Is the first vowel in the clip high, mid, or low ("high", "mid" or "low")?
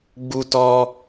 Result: high